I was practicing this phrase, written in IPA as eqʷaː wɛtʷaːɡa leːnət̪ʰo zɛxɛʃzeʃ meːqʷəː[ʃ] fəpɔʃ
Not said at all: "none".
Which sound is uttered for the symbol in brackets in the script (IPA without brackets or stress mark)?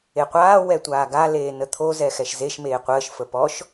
ʃ